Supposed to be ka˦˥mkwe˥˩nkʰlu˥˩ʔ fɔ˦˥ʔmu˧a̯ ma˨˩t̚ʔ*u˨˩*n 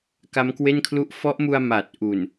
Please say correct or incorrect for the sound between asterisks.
correct